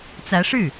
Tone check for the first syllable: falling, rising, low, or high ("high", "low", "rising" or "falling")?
rising